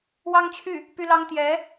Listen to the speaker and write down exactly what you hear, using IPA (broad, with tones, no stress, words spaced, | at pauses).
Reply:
wɑ˥ŋt͡ɕʰy˥˩ | py˥lɑ˥ŋ t̪jɛ˧˥